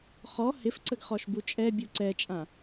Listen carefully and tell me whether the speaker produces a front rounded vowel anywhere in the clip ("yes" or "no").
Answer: no